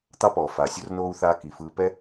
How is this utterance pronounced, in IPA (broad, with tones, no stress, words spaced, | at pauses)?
t̪ɑ˥pɔː˩faː˨sʲo˥r noː˥u̯θaː˦ ki˨fɯː˦ pɛ˥